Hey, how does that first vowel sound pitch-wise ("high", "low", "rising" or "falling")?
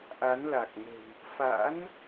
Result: rising